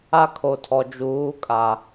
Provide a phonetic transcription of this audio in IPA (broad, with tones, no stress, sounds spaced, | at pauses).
a˦ kʰ o˨ tʰ ɔ˨ d͡ʒ uː˨˦ kʼ a˨